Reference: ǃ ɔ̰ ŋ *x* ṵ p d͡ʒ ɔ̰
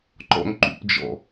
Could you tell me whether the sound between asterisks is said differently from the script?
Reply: yes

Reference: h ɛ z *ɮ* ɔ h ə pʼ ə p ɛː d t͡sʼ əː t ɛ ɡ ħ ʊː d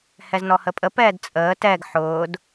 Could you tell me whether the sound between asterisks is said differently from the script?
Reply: yes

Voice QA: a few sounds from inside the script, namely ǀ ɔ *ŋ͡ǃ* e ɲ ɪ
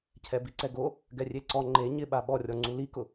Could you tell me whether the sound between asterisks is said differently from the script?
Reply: no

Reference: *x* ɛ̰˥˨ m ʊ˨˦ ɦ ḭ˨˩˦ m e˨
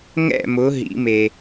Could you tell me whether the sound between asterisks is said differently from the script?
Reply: yes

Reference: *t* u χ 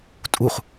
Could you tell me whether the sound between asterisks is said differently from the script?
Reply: yes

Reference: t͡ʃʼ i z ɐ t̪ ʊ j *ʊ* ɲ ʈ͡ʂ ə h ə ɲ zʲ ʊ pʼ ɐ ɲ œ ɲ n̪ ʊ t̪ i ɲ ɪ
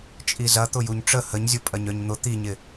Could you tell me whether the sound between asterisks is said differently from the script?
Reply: yes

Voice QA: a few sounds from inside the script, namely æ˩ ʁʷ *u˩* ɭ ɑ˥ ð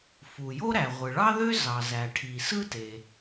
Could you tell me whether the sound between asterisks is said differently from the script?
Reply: yes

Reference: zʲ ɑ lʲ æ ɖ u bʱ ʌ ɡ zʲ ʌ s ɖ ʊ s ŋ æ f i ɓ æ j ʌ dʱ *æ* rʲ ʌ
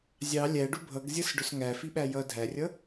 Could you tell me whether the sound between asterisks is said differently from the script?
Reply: no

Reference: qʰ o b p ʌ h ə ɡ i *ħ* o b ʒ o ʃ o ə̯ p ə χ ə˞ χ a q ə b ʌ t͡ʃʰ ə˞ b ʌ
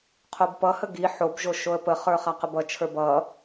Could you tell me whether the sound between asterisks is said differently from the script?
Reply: no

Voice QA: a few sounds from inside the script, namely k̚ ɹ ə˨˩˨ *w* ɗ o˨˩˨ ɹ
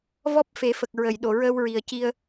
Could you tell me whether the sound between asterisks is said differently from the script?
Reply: yes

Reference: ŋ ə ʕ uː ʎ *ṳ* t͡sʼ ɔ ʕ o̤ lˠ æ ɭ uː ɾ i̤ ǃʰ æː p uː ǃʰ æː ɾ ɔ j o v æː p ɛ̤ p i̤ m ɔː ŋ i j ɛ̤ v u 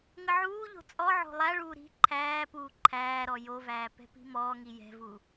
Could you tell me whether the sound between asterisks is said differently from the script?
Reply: yes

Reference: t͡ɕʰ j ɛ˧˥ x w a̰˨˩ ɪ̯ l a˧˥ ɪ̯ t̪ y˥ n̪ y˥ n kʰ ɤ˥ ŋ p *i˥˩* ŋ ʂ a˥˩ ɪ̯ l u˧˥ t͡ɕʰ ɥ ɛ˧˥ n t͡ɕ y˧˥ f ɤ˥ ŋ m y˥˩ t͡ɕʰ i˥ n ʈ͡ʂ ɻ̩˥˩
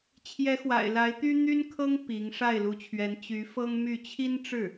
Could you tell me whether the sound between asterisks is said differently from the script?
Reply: yes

